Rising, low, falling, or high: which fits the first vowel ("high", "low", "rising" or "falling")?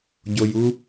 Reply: low